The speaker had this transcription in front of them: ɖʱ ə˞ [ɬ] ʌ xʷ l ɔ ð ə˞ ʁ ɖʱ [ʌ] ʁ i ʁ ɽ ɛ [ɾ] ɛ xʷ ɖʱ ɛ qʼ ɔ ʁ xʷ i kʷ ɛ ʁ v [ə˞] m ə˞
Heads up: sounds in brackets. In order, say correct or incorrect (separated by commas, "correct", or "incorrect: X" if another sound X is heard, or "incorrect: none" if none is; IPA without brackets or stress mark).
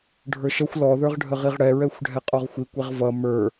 incorrect: ʃ, incorrect: ə, incorrect: ɹ, incorrect: ʌ